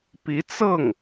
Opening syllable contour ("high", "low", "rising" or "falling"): rising